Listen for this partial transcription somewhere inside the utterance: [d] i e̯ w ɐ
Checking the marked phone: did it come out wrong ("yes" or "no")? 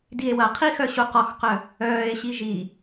no